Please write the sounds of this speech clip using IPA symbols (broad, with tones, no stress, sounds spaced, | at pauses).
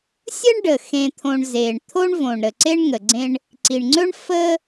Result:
sʲ ə˥ ɳ ɖ ə˩ x ẽ˨ t̪ʰ õ˨ ɳ z e˩ ɳ t̪ʰ o˥ ɳ v õ˩ ɳ ɾ ə˩ ǀ e˥ ɳ ŋ ə˩ ɡ͡ǀ ẽ˦ ɳ | ǀ i˩ ɳ ŋ͡ǀ ɵ˥ ɳ f ə˦